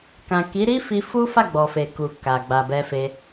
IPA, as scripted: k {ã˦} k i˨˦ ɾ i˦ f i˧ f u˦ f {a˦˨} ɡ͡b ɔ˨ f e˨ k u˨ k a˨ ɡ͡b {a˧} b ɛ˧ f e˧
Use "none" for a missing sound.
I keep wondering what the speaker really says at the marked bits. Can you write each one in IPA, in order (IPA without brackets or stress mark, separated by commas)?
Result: ã˨, a˦˨, a˨